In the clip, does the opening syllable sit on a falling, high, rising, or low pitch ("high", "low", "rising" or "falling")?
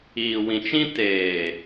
low